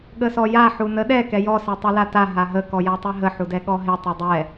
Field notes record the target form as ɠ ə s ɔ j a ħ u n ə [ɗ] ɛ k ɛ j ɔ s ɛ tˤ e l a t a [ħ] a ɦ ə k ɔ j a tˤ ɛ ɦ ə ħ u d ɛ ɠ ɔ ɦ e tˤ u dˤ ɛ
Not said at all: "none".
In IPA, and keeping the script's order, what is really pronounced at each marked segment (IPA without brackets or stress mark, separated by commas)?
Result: ɗ, ɦ